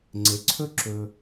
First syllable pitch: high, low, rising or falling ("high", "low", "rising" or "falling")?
low